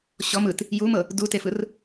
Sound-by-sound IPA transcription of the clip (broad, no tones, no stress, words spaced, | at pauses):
ɕɔm ɯt | jumɤ | dutefɯr